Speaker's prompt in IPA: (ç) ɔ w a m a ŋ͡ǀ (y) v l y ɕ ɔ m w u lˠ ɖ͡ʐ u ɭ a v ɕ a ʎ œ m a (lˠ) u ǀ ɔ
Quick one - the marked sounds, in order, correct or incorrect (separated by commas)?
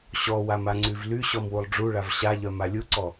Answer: incorrect, correct, incorrect